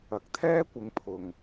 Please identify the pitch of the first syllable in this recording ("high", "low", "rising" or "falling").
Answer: low